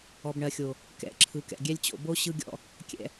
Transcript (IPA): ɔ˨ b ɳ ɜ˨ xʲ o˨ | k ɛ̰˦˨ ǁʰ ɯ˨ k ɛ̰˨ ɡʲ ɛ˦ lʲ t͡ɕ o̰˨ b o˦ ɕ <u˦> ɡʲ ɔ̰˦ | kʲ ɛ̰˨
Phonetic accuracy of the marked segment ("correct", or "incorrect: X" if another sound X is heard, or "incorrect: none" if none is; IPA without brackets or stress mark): incorrect: ɯ˦